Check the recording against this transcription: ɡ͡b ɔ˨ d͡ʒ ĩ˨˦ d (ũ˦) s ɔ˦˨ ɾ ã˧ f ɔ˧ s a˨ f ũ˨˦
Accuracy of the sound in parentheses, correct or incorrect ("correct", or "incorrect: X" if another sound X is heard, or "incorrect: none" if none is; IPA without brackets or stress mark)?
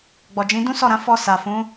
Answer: correct